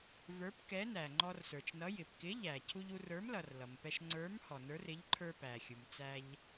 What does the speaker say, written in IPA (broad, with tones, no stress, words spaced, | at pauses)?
və˞˨˥pkɛ˨˥næ˩ ŋ͡ǃɔ˧rsə˞˩t͡ʃnʌ˨˥ jɪ˩pkɪ˨˥ ʎæ˩ cʰu˧ʎu˧rə˞˨˥mlʌ˩r lʌ˩mpɛ˧ʃ ŋ͡ǀə˞˨˥m hɔ˩nə˞˨˥r ɪ˨˥ʎǃʰə˞˧ pæ˩xʲu˩m t͡sæ˧ʎ